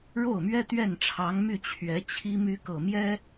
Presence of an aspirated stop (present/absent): present